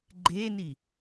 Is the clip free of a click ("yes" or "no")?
no